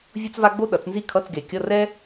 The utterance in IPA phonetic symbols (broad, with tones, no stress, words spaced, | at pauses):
vʲu˥t͡sva˥ ɡ͡bo˥ɗʌ˨˩˦t͡s nzi˥kʰʌ˧˥˧t͡sɡe˨˩˦ kʲʌ˧˥˧rɛ˥